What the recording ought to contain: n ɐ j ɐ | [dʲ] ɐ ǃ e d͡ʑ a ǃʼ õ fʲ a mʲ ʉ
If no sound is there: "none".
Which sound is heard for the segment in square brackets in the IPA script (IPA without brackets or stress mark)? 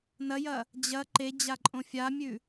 d͡ʑ